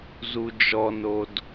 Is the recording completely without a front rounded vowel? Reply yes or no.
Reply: yes